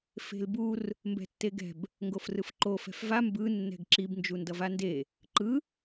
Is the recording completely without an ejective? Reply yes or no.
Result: yes